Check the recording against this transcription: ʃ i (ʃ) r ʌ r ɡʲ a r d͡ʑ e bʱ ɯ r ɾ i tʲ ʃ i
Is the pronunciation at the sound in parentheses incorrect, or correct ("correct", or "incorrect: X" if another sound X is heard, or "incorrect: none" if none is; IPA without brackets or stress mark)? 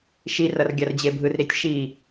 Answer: incorrect: none